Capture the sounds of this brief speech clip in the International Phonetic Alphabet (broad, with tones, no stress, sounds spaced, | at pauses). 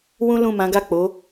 w ũ˦ l ũ˦˨ m ã˨˦ ɡ a˦˨ k͡p o˨˦